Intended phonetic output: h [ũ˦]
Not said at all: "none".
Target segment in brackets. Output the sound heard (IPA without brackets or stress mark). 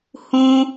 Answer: ũ˦